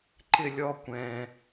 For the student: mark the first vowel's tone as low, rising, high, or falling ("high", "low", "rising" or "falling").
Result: high